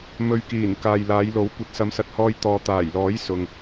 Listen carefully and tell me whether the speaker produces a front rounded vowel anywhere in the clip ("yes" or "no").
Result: no